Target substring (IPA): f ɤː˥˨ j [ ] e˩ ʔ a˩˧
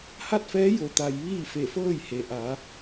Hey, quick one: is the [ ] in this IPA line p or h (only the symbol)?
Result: h